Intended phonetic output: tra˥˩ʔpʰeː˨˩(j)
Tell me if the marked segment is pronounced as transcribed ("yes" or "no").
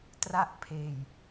yes